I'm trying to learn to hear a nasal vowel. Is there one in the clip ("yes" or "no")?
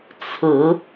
no